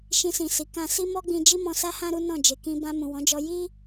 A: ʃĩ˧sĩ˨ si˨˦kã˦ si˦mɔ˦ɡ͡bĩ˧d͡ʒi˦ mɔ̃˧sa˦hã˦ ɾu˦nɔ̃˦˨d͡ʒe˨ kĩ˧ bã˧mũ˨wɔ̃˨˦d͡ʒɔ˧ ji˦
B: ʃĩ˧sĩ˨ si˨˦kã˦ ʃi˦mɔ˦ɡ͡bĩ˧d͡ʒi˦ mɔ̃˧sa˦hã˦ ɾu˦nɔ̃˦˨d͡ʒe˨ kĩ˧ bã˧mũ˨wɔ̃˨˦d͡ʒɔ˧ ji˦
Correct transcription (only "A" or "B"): A